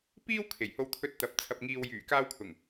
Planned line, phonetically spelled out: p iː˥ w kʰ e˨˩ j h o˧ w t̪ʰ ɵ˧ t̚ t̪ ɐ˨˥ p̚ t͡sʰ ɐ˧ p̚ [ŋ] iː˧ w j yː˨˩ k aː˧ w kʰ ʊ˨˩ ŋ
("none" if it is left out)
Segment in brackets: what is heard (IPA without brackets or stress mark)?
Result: ŋ